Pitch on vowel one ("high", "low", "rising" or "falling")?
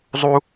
high